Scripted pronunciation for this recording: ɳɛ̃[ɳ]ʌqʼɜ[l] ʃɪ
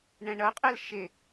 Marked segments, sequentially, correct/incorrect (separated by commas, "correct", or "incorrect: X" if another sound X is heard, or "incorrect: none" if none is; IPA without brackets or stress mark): correct, correct